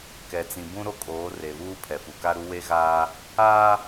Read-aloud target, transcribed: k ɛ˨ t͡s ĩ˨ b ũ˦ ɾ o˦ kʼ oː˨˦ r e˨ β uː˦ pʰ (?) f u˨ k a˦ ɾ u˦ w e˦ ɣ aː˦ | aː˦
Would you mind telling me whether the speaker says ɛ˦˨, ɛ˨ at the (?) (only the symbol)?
ɛ˨